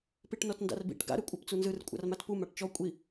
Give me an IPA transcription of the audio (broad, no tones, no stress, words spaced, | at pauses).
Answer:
piʈnɔtnda̰rbḭʈ ɡa̰ɾɯ kʷʼapt͡sunzɯr kʷʼa̰rmatpu maʈt͡ʃɔ kʷʼi